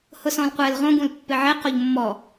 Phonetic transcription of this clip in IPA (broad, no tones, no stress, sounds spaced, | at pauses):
h ʊ s ɔ̃ l qʷ ɛ l ʁ õ ɡ ũ l pː ɪ ʕ e q o ʎ mː ɔ